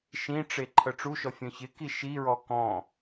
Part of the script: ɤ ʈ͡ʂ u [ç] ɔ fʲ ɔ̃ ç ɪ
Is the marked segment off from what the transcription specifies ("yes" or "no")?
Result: yes